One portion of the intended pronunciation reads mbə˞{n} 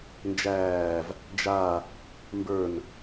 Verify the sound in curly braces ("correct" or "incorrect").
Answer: correct